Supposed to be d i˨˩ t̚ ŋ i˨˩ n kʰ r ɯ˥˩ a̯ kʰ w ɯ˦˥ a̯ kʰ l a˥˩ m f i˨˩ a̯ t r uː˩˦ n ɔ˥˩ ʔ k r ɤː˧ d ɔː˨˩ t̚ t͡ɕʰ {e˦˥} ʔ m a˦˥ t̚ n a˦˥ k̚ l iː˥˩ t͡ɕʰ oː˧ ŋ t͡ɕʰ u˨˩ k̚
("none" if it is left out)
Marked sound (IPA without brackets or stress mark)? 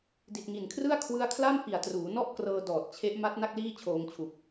e˦˥